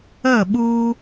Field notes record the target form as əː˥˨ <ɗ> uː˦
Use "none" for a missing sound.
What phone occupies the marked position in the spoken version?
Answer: ɓ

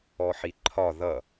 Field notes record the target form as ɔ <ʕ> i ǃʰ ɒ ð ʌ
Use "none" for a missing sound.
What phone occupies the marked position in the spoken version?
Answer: ħ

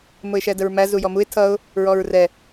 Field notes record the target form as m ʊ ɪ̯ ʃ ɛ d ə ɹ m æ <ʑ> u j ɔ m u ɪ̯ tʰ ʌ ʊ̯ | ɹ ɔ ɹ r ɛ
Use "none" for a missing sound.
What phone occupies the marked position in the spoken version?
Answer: z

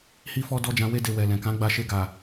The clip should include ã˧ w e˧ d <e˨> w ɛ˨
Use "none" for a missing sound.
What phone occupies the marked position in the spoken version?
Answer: e˨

